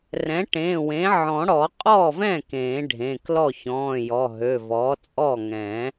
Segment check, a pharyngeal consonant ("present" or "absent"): present